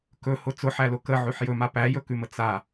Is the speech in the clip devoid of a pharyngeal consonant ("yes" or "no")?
no